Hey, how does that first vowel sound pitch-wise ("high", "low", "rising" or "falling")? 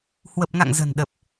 low